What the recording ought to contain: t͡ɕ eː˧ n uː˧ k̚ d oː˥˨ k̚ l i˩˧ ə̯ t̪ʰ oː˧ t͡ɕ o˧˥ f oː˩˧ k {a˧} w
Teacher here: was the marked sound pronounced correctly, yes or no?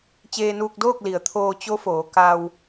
yes